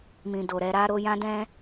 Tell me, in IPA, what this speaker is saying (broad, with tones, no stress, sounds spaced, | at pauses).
m ĩ˨ d o˨ ɾ ɛ˧ ɾ a˦ ɾ o˧ j ã˦ d ɛ̃˦